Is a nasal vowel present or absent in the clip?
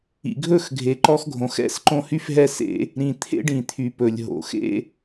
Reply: present